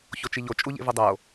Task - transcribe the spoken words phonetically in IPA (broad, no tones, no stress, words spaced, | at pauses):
çot͡ʃiʎo t͡ʃʼuʎḛvudˤo